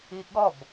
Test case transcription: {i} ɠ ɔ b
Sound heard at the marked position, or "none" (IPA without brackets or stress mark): i